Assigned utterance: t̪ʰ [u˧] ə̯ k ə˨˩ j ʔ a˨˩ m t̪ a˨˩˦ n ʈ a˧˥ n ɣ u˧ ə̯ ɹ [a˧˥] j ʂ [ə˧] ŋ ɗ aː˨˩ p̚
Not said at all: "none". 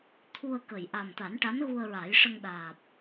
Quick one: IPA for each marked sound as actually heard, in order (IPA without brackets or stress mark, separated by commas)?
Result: u˧, a˨˩˦, ə˧